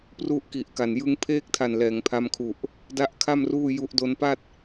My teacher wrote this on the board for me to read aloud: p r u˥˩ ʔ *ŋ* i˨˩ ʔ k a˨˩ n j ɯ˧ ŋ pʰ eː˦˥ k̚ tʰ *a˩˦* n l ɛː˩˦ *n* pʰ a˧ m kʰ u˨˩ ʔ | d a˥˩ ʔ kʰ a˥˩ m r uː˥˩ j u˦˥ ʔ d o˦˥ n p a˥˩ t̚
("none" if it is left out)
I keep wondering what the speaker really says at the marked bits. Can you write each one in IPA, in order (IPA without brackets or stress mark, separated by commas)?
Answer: k, a˨˩, ŋ